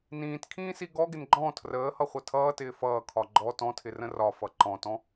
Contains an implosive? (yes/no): no